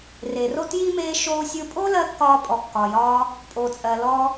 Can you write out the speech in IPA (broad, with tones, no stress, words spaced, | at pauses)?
re˩ro˥tji˥ meː˧ ʃoː˧sʲɯ˧ pʼo˥lɜ˧ kːɒː˧pʼɔ˩kːɒː˩jɒː˧ | pʼo˩t͡sʼɜ˩ lɔ˧